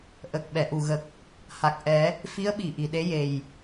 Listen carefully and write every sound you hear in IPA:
ʔ ə˨˩ k̚ ɓ ɛ˨˩˨ ʔ u˨˩ ɣ ə˨˩ k̚ | h a˨˩ k̚ ʔ ɛ˨˩˦ | f i˧˥ ə̯ ɓ i˨˩˨ ʔ i˨˩˨ ɗ e˧˥ j e˨˩ j

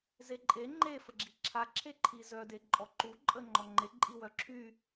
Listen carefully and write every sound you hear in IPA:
z e ǃʼ e ŋ͡ǃ e f ə ɡ͡ǁ i ǁʰ a ǁʰ e ǃʰ i z œ d e ǃʼ ɔ ǃ u ǃʼ ə ŋ͡ǃ ɔ ŋ͡ǃ e ǃʼ i w œ ǁʰ y

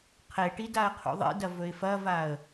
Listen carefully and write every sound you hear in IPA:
qʰ e ʈ i d a ə̯ qʰ ṵ ðˤ ḭ d ɐ v ɵ ɪ̯ f ɐ v a ə̯

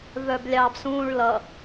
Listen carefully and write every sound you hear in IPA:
v œ b lʲ ɑ b s ũː ɭ l ʌ

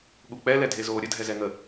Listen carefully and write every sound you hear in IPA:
ɠ u k͡p ɛ l ɛ dʱ e z oː ɾʲ ə dʱ ɛ z ɛ ŋ ə

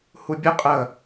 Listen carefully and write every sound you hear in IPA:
h u bʲ ə qʼ ə

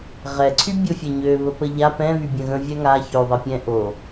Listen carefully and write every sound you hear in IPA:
ʁ ɛ ǀʰ y bʲ o fʲ ɛ ɲ ø β ə p ə ʎ a p ɛ̃ β y bʲ ə̃ ɣ ə̃ vʲ ɛ ŋ a ç ø ðˤ e pʲ ɛ̃ ʔ o

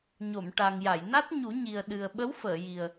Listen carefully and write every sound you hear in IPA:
ɲ o˨˩˨ m ʈ a˨˩ ŋ j a˨˩˨ j n a˦˥ t̚ ɲ u˨˩˦ ɲ i˨˩ ə̯ ɗ ɨ˨˩ ə̯ ɓ ə˧˥ w f əː˨˩˨ j i˨˩ ə̯

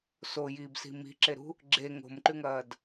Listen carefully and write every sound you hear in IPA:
s o j iː b s i̤ m i̤ ǁ e ɾ ṳ | ɡ͡ǁ e ŋ o̤ m ǃ ʉ ŋ ɐː d

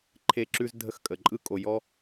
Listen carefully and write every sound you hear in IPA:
ǃʰ e˧ ǁ ʉ˦ z dʱ ə˧ x kʼ ə˨ ǃʼ ɯ˦ kʼ o˧ j ɔ˦

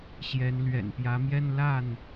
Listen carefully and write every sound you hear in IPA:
ɕ j ɛ˨˦ n l ɥ ɛ̰˨˩ n p j ä˨˦ m j ɛ˦ n l a˥˨ n

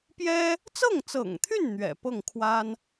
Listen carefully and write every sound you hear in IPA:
p j ɛ˥ | t͡s ɤ˥˩ ŋ t͡s ɤ̰˨˩ ŋ t̪ʰ y˥˩ n n̪ ɥ ɛ̰˨˩ p ɤ˥˩ ŋ kʰ w a˥ n

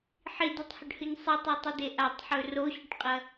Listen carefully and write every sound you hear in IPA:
ħ i d i tˤ h ɵ ɖ h ɨ ɲ sˤ ɨ tˤ e tˤ ɨ d e ʔ a tˤ ħ ɵ r o ɕ ɵ ʈ qʼ ɐ

